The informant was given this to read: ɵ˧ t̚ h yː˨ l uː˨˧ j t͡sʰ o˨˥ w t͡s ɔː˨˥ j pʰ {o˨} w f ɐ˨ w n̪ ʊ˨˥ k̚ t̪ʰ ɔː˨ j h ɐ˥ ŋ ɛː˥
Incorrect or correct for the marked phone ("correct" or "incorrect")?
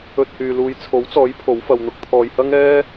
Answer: incorrect